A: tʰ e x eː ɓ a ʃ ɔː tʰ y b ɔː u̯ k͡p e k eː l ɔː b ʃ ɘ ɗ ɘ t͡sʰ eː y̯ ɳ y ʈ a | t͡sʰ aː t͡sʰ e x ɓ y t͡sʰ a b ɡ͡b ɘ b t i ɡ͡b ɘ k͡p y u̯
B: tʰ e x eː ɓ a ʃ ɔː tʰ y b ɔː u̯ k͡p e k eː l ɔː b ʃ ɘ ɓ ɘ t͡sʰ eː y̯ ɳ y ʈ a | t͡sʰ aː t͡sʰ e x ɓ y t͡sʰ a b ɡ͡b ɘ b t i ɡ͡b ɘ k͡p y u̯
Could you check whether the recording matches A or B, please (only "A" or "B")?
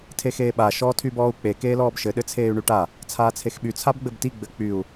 A